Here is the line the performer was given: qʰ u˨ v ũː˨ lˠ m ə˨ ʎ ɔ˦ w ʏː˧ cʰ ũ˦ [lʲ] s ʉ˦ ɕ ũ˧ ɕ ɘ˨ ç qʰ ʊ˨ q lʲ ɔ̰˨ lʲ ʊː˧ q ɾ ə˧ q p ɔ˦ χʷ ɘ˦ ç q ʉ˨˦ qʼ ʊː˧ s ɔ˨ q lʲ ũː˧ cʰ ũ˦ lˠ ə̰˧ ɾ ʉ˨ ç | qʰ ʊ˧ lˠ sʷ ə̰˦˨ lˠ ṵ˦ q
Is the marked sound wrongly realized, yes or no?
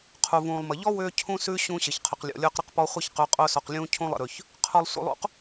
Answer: yes